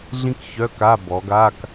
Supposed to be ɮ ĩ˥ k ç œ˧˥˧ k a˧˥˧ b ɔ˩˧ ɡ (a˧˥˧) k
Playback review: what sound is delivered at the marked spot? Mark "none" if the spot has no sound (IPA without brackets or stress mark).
a˧˥˧